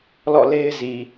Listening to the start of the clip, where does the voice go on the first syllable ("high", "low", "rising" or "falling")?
falling